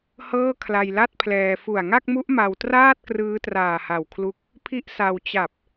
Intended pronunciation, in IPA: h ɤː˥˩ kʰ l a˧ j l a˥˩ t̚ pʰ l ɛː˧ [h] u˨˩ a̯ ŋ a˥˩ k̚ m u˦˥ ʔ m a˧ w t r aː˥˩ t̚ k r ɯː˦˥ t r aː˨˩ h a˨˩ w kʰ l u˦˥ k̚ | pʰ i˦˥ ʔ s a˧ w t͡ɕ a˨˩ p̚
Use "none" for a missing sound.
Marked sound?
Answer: f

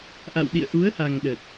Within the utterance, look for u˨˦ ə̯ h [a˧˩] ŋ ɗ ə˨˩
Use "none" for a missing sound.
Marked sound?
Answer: a˨˩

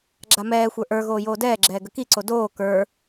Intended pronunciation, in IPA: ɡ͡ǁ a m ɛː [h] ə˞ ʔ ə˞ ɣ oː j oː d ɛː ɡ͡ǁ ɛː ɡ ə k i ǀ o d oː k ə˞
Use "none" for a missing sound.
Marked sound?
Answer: xʷ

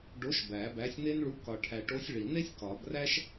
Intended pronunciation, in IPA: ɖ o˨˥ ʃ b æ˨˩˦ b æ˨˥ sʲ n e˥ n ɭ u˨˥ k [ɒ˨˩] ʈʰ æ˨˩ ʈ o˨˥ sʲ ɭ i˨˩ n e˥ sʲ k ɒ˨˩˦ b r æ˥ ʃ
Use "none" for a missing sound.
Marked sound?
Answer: ɒ˨˩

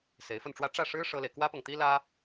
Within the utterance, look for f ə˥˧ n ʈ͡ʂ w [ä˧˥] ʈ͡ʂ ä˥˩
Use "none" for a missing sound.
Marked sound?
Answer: ä˥˧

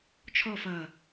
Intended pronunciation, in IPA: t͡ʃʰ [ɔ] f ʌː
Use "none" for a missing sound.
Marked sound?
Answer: ɔ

